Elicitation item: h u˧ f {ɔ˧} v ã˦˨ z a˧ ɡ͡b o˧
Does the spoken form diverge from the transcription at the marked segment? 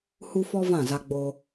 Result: no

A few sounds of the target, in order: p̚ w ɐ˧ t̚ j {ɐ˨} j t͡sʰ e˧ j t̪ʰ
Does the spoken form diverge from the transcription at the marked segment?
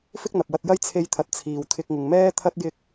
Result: yes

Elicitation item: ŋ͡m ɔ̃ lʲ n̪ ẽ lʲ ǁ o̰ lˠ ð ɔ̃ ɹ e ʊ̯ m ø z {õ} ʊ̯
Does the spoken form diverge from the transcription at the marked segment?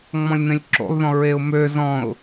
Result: yes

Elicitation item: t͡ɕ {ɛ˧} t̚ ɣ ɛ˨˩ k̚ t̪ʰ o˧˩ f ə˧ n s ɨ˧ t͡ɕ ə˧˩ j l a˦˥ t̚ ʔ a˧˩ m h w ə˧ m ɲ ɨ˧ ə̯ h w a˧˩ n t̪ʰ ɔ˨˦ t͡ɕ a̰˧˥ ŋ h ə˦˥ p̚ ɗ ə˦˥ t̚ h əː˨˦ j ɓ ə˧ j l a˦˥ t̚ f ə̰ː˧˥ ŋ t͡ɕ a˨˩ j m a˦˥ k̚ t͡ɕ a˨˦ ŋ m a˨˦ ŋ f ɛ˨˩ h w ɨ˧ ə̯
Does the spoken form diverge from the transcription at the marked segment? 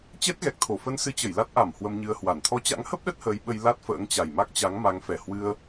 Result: yes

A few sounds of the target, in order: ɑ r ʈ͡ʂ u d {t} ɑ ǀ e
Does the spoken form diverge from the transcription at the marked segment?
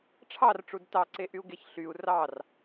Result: no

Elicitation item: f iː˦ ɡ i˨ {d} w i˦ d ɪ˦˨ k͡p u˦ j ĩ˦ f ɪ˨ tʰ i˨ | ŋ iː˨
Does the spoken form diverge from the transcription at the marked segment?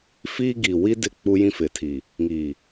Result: yes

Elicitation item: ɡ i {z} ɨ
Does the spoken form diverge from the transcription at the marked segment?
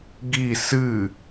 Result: yes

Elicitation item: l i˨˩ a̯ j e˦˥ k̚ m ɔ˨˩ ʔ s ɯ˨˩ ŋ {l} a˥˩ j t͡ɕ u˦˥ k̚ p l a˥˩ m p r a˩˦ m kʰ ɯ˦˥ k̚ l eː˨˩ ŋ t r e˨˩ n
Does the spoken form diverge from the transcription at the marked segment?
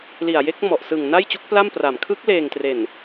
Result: yes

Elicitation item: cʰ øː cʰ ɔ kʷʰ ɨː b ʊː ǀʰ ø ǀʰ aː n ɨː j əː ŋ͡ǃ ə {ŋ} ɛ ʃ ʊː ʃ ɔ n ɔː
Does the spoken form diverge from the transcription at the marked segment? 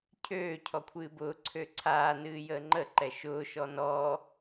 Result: yes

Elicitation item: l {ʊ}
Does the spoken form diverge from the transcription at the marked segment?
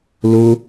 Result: no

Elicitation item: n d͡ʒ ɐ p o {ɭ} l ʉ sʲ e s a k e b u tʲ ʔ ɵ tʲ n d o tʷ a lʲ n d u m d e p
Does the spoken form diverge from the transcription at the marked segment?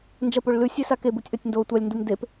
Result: no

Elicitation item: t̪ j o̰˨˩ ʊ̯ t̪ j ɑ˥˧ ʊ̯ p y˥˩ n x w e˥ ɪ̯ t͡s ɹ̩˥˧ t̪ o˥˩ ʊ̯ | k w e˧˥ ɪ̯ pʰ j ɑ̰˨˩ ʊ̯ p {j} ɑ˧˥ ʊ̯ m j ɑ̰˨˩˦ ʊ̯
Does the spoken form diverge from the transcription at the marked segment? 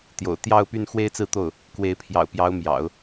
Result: no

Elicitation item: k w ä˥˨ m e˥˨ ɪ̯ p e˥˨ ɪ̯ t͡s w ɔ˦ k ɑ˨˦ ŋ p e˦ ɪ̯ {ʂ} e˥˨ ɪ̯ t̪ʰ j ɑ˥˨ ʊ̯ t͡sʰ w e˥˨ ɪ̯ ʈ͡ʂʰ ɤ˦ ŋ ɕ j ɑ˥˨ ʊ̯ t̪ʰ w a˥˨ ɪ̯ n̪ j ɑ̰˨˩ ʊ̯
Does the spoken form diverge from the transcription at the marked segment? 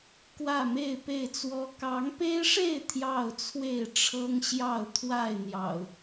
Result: no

